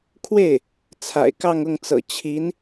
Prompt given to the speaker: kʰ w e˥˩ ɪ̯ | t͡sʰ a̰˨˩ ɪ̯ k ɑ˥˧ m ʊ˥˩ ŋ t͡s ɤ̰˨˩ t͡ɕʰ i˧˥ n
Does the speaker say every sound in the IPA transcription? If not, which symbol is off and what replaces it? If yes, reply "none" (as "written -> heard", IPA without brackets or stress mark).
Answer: m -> ŋ